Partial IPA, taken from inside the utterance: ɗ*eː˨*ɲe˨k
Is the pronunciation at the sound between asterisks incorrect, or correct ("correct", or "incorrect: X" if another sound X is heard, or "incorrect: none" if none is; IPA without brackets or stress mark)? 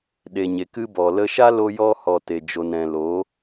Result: incorrect: e˨